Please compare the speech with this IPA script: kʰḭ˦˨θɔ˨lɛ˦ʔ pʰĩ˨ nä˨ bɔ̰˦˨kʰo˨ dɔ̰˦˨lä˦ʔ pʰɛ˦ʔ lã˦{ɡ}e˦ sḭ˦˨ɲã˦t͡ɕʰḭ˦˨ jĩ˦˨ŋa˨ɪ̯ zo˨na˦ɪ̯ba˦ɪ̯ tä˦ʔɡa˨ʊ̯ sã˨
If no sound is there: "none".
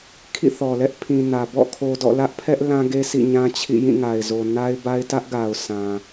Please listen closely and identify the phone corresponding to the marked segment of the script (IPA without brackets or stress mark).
ɡ